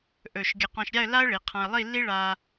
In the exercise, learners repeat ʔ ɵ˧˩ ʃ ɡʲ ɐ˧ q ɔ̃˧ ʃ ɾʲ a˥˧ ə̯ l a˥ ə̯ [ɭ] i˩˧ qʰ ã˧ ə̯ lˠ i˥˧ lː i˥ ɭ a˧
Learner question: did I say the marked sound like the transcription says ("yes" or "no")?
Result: yes